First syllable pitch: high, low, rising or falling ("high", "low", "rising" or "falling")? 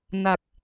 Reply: low